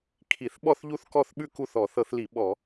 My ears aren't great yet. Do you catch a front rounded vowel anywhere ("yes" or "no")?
no